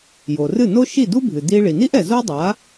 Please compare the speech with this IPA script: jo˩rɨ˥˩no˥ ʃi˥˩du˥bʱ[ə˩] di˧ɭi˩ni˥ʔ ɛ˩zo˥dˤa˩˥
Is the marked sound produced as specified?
no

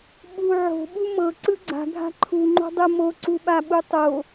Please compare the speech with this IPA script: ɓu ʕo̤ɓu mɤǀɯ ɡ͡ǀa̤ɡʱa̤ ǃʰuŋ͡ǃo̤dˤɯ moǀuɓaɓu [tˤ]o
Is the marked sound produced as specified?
yes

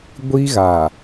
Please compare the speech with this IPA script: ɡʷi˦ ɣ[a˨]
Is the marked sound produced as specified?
yes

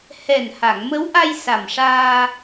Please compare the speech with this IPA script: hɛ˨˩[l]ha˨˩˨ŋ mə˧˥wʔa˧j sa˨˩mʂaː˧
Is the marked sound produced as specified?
no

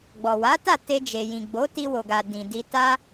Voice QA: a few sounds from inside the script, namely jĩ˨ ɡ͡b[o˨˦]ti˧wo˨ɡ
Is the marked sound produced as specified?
yes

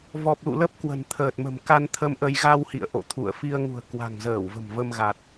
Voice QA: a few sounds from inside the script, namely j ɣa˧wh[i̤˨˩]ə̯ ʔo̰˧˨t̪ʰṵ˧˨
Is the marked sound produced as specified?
no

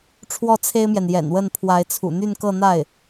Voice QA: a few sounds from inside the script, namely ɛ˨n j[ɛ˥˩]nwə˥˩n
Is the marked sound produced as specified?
no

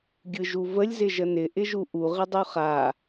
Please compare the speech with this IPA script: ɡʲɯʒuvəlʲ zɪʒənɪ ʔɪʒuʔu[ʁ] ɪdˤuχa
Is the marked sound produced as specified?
yes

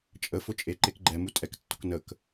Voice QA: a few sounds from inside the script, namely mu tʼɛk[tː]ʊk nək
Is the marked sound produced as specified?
yes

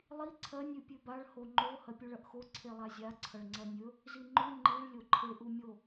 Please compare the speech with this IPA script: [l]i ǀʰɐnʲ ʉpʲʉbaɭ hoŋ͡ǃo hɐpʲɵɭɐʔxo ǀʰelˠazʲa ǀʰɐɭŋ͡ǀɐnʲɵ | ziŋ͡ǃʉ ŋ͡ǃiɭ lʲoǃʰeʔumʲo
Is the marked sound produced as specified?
no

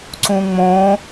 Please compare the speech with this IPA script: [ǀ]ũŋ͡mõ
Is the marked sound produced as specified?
yes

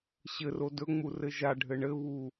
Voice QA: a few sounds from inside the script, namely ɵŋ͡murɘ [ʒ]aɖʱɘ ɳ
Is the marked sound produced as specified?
yes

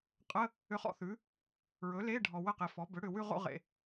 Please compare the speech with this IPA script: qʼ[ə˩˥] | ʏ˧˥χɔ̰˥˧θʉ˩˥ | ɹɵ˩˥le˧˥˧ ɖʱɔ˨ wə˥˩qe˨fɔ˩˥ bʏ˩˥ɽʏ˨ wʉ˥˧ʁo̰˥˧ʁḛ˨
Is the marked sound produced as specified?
no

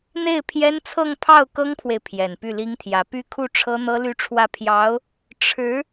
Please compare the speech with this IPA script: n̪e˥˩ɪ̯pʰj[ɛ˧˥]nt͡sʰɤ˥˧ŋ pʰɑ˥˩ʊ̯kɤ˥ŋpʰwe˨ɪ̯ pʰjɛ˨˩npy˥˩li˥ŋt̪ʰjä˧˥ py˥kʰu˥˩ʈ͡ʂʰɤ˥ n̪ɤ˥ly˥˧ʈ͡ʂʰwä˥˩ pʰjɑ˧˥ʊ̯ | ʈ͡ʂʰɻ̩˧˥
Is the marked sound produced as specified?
no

